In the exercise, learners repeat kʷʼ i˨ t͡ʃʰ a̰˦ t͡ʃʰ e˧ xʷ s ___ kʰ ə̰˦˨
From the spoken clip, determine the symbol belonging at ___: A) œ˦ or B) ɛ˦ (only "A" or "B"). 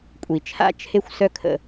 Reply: A